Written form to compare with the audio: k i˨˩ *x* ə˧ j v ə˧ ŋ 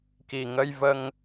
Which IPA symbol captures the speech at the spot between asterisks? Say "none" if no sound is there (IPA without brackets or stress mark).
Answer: ŋ